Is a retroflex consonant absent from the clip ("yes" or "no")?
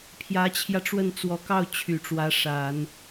no